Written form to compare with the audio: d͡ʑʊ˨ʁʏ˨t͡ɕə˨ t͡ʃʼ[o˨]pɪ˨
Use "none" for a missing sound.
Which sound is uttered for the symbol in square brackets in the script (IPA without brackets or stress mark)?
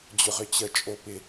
o˨